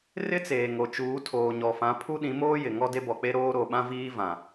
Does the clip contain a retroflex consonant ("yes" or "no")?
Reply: no